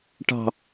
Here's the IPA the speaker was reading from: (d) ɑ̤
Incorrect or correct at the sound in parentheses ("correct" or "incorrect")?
incorrect